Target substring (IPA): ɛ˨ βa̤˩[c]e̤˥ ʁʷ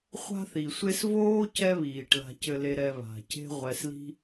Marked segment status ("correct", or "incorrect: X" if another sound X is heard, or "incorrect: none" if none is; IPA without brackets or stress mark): correct